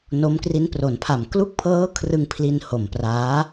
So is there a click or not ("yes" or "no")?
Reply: no